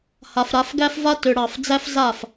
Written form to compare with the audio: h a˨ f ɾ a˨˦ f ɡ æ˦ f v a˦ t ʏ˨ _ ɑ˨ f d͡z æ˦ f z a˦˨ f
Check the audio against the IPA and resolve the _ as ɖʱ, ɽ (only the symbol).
ɽ